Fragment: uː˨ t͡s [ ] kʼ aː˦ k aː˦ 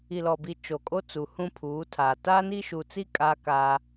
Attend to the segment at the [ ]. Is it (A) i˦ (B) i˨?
A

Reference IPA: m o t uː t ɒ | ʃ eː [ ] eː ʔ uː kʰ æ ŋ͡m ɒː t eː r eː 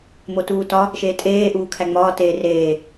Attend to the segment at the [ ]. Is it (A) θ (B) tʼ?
B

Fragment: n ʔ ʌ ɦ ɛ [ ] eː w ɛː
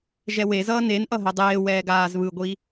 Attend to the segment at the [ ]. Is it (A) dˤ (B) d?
A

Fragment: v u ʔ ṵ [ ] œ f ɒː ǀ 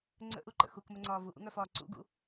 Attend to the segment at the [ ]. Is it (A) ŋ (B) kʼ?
A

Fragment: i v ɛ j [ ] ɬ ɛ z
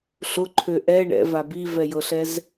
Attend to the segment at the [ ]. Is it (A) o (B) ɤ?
B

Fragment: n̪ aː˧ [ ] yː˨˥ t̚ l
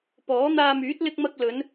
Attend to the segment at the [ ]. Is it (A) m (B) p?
A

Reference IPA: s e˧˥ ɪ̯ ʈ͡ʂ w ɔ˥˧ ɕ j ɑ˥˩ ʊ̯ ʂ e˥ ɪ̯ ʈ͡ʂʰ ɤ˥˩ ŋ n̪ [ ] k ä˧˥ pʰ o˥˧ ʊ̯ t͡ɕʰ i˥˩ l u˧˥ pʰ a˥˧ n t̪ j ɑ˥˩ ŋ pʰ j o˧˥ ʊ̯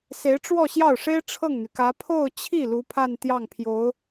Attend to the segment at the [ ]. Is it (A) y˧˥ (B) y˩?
B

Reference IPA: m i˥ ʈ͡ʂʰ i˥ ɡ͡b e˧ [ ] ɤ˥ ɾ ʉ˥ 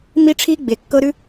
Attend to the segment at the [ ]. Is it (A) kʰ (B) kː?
B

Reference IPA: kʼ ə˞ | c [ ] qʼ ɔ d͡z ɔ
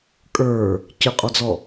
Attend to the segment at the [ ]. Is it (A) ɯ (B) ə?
B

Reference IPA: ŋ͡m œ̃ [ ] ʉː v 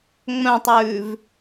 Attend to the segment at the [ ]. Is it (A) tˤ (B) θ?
A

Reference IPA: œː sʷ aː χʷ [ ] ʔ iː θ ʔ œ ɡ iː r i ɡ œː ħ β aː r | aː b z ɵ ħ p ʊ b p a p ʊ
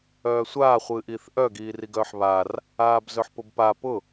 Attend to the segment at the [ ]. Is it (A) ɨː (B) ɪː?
A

